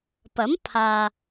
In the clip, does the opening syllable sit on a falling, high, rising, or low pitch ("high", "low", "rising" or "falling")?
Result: rising